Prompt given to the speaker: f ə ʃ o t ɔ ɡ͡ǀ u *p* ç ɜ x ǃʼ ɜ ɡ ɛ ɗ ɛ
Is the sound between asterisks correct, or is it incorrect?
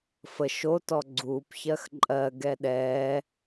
correct